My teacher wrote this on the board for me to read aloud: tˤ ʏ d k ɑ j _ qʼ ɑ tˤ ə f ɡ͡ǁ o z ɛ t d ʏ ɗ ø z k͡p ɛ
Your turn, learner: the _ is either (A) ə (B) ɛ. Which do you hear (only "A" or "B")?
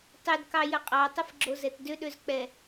A